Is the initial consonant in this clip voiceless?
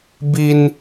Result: no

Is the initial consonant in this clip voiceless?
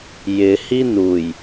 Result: no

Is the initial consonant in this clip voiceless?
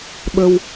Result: no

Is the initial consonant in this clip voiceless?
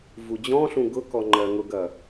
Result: no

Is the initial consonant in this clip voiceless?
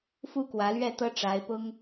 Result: yes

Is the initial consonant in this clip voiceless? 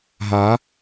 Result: no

